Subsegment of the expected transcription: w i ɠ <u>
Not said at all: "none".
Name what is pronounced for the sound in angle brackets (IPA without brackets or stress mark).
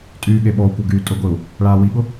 ʊ